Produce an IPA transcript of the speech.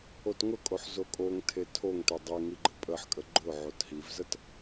o t ŋ ʊ kʼ o ħ z o kʼ o ŋ tʰ e tʰ o ŋ t e dˤ e ŋ i ɡ͡ǃ ə pʼ ə ħ kʼ ə ɡ͡ǃ ʊ ʕ o t ɦ i v z ə t

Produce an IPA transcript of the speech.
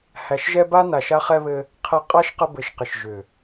h æ˨ ʃ ʒ ɛ˦ b a˦ n a˨ ʃ a˧ χ ɛ˧ β ɘ˧ | qʰ ɛ˨ qʼ a˧ ʃ q ə˧ b ɘ˨ ʃ q ɪ˨ ʃ ʒ ʏ˨

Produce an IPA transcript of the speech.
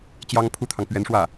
t͡ɕ j ɑ˥ ŋ pʰ u˥ t̪ʰ ɑ˨ ŋ p ɥ ɛ˧˥ n ʂ w ä˥˩

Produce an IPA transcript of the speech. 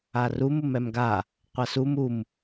a r u m u m ɛ m ɡ a | qʷ a s u m u m

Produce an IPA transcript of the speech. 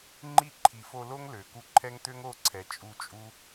ŋ͡ǃ i˦˨ ǃʰ i˨ f o˧ l o˦ ŋ l ø˨ k u˧ ǃʰ ɛ˦ ŋ t̪ ø˦ ŋ o˦˨ ǀʰ ɛ˨ t͡ʃʼ u˧ t͡ʃʼ u˦

